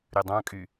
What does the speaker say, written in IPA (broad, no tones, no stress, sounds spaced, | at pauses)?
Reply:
ɾ y dˤ ɑ̃ kʼ y